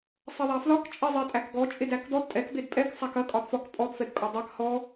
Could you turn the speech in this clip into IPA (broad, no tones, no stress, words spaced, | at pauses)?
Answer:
sˤɛðˤæflɒk t͡ʃʼezˤetʼækɡɔ t͡ʃʼedækdɔd tʼɛk bedpʼɛk sˤækɐ kʼɒdfɒk pʼɔd fɛdkʼɒdˤæk hɔ